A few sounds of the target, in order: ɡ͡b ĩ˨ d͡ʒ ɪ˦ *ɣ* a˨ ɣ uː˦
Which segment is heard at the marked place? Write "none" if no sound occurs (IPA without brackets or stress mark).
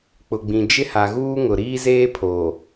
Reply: h